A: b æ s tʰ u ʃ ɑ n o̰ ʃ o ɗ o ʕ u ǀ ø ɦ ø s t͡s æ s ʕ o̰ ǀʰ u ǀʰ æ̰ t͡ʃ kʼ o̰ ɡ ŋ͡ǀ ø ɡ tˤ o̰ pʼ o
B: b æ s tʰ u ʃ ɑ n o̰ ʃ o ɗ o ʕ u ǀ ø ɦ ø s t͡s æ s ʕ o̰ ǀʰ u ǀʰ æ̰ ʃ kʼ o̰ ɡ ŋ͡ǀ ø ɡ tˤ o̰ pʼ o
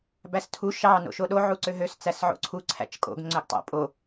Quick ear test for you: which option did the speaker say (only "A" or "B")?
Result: A